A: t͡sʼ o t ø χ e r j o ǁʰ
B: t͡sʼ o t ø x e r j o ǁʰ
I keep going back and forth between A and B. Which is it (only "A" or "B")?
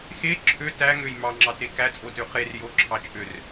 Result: A